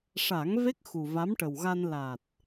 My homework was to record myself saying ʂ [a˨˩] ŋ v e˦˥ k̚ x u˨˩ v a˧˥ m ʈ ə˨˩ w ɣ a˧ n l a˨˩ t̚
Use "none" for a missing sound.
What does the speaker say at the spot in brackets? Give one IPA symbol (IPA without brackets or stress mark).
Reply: a˨˩˦